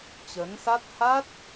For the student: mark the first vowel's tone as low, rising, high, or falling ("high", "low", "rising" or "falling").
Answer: rising